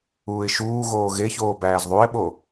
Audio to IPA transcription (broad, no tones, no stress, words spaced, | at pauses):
uːɪ̯ʃuːɣoː ɣeçoː bæːzðˤuɪ̯ɓo